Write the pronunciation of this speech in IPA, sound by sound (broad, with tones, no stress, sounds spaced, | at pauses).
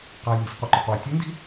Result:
q a˩ j ŋ i̤˩ sʲ qʷ ɨ˩ ǃ ɵ˩ q w ɨ˩ tʲ ʉ˧˥ n d i̤˥